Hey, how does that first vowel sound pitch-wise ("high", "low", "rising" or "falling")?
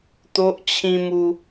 high